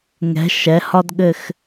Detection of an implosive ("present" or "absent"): present